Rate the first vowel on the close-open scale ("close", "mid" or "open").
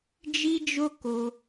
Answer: close